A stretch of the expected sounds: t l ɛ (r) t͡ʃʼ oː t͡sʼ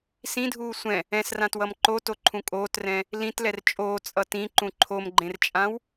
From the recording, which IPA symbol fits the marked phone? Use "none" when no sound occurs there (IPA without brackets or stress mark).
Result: r